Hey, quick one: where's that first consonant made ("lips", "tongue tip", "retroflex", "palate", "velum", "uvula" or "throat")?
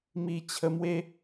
lips